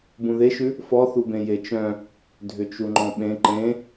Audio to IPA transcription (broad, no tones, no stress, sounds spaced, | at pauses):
b ũ ð e ʃ ʉ | f ɔ θ u b ẽ j e t͡ʃ œ̃ | dʱ ʏ t͡ʃ u ŋ͡ǃ ɔ̃ ɓ ẽ ǃ ẽ